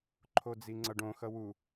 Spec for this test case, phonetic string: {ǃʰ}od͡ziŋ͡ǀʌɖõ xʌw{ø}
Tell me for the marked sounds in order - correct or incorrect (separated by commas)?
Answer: correct, incorrect